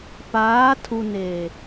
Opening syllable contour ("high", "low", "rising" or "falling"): rising